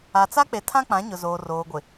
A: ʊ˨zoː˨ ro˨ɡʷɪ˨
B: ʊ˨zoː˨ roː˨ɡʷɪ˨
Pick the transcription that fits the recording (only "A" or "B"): B